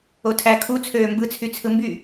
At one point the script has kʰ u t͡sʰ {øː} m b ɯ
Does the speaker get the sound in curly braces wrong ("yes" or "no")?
no